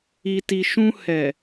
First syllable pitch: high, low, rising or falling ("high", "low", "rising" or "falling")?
low